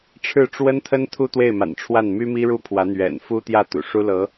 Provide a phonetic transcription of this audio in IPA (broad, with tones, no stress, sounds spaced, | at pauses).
ʈ͡ʂʰ ɻ̩˥˩ ʈ͡ʂ w ə˥ n t̪ʰ ə˥ n t̪ʰ u˥ t̪ w e˥˩ ɪ̯ m a̰˨˩ n ʈ͡ʂʰ w a˥˩ n m y˥ m i˥ ɻ u˥ pʰ w ä˧˥ n̪ ɥ ɛ̰˨˩ n f u˥ t̪ j ä˥˩ t̪ ṵ˨˩ ʂ u˥ l ɤ˧˥